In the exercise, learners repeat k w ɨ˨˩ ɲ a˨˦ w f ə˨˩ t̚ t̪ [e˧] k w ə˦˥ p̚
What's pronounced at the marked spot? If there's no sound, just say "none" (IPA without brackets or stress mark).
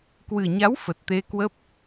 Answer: e˧